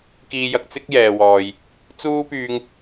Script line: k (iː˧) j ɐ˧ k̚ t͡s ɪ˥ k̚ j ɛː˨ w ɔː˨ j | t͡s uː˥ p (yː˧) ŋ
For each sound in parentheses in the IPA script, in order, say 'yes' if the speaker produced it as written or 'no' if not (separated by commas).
yes, yes